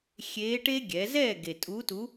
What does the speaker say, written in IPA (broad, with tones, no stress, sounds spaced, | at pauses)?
xʲ eː˧˥ ʈ e˥ ɡʲ ɛ˩˧ z ɛː˥˨ ɡ e˨˩ tʼ u˧˥ t u˧˥